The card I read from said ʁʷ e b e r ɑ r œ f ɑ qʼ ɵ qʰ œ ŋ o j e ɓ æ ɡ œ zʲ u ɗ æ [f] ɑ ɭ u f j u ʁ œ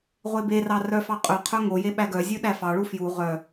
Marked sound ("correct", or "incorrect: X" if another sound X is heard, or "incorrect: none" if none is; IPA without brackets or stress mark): correct